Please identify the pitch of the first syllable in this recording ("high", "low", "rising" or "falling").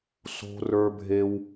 high